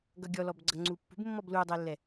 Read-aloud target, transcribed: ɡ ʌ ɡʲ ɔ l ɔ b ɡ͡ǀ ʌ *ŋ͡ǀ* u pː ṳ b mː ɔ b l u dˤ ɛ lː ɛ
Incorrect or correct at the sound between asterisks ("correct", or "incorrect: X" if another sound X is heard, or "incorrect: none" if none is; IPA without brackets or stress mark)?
correct